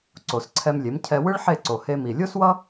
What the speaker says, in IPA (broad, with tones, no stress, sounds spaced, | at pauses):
ǀ o˩ s ǀʰ ɛ˧ m lʲ e˩˥ m cʰ ɛ˧ w ɯ˥ ɭ ħ e˥˩ ǀ o˩ h e˧ m i˩ lʲ o˥ s w ʌ˥